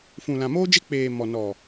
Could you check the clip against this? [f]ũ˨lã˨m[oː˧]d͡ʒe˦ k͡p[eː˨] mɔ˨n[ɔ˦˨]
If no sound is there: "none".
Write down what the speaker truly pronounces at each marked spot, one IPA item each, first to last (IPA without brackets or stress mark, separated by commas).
f, oː˦, eː˨, ɔ˨